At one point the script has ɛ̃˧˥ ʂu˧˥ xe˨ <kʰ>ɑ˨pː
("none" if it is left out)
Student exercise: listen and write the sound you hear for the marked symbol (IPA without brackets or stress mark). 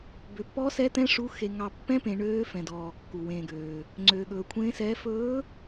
ŋ